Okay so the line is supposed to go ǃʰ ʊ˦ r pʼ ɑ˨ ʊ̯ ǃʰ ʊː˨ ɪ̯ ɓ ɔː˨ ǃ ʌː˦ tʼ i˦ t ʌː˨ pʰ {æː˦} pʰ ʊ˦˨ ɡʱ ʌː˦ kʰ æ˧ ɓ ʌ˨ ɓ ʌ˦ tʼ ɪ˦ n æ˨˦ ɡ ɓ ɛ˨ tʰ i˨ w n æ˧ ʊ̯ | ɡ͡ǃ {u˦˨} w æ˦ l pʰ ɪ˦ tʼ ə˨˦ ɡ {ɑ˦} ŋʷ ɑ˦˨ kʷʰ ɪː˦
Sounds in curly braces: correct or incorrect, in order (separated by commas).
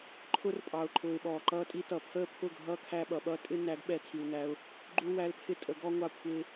incorrect, incorrect, incorrect